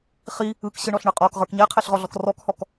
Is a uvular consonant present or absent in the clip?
present